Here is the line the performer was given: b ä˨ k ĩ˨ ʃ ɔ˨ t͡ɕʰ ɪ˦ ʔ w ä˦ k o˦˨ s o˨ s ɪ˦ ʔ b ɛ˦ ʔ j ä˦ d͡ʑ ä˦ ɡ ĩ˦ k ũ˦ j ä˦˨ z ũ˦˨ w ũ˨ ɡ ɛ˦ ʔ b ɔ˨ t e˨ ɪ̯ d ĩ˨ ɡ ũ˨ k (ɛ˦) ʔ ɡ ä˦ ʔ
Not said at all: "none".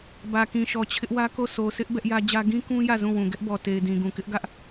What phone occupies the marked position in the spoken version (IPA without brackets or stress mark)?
ɪ˦